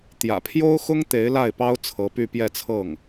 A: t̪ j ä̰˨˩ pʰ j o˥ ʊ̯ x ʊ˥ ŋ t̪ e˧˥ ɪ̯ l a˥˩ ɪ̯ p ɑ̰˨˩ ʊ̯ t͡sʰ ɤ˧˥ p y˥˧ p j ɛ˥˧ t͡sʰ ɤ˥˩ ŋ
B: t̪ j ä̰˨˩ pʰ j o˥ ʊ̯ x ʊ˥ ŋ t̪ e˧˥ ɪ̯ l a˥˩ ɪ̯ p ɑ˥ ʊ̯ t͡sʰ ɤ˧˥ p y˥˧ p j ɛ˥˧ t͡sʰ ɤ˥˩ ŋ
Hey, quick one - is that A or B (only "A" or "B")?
B